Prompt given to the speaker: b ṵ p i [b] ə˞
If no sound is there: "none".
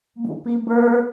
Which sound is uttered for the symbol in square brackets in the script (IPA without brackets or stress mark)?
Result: b